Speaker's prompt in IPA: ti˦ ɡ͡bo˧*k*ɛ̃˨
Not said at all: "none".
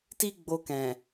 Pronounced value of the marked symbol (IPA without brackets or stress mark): k